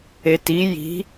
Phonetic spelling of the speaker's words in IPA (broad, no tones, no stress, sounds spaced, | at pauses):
e t i j i̤